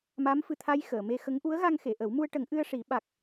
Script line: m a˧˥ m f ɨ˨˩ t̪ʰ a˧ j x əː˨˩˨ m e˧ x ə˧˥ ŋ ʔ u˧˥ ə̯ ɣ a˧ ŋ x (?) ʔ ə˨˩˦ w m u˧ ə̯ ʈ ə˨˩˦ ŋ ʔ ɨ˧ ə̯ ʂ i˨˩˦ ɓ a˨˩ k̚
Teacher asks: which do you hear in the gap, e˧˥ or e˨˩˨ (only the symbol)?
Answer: e˨˩˨